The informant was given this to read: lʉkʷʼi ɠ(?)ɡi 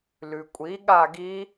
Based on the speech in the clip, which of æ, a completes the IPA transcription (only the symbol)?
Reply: a